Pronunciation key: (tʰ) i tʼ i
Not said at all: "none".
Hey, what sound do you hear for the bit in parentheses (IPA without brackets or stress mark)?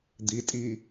d̪